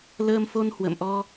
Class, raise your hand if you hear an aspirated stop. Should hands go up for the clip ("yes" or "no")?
no